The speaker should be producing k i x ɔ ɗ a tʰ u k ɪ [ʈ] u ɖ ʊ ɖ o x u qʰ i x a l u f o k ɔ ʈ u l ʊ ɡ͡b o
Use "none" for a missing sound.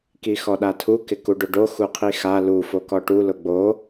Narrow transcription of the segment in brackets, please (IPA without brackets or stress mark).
k